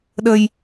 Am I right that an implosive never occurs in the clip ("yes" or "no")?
no